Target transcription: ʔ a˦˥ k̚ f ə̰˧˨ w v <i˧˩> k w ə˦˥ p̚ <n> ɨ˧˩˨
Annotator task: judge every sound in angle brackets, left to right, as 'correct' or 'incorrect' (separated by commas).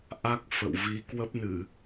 incorrect, correct